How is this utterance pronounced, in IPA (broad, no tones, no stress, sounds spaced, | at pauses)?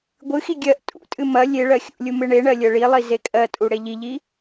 ɡʷ ɨ x i ɡʲ ɜ ʔ tʼ ṵ tʼ ɨ m ɐ lʲ e ɭ ɜ xʲ ṵ lʲ u m ɨ ɳ e ɳ ɜ lʲ ɜ ɭ i lˠ i z e kʼ ɜ tʼ u ɽ e ʎ i ʎ i